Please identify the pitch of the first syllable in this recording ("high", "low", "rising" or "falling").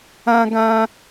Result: high